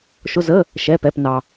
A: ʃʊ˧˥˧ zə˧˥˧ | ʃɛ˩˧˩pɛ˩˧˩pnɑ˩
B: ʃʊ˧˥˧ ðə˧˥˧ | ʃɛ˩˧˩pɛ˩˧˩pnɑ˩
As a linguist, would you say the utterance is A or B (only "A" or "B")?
A